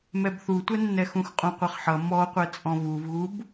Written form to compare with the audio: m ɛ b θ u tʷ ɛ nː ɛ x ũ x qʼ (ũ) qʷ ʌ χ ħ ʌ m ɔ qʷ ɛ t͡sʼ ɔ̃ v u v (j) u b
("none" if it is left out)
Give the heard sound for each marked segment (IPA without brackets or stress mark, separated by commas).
ũ, ɣ